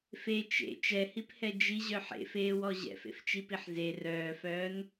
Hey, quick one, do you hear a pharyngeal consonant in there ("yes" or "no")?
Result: yes